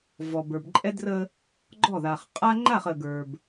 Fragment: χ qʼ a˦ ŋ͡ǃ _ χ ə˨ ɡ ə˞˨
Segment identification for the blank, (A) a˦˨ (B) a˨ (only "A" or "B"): A